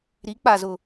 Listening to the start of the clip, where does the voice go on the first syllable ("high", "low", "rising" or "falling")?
rising